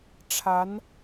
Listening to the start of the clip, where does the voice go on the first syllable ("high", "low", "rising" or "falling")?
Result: rising